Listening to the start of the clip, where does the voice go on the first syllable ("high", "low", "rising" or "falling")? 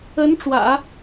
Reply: rising